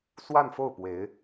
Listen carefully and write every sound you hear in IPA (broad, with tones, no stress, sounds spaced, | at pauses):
s w a˥˧ n f o˥˩ ʊ̯ p w e˧˥ ɪ̯